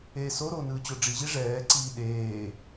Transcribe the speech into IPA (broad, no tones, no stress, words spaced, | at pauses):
eːsoɾo nɯːt͡ɕoɖ͡ʐiʑi ʐɛːǀiː ɗeː